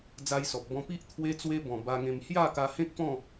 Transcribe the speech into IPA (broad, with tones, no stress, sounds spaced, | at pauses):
d͡z a˧ j s ɔ˨ p̚ b ɔ̃˧ p i˦ ʔ t̪ʰ w e˦ t͡s w e˦ b ɔ̃˨˩ b a˧ ŋ ẽ˧ m h j a˥˧ k a˧ h ẽ˦ k̚ p ɔ̃˥˧